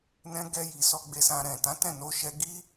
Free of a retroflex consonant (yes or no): yes